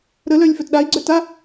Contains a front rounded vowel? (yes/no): yes